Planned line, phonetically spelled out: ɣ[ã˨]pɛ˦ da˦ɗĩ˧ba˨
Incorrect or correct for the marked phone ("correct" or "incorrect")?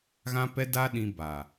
incorrect